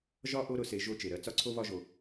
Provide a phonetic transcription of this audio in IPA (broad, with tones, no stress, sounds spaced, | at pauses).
ʒ ɒ˦ ʔ o˦ ɾ ʊ˧ s e˧ ʒ o˧ t͡ʃ e˨ ɾ ɜ˧ t͡s ɒ˦ ǀʰ o˦ β ɒ˦ ʒ o˧